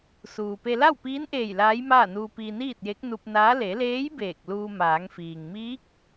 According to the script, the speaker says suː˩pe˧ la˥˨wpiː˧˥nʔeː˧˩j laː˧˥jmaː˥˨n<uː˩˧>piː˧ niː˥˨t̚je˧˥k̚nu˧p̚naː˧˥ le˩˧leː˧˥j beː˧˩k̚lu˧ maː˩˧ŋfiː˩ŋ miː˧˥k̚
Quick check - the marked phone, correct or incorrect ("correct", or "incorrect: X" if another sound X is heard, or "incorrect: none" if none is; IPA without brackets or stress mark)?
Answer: incorrect: uː˧